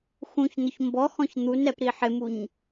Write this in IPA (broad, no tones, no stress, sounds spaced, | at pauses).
x ũ ç n ʊ ç m b ɔ x ɔ̃ ç n̪ u n ɾ ɛ p ɾ i ħ ɪ m u ɲ